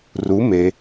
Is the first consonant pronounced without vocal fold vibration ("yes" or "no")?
no